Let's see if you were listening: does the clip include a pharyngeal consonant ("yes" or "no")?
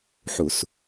yes